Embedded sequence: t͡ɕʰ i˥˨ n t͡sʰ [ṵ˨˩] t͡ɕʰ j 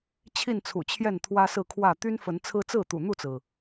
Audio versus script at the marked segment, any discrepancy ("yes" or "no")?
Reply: no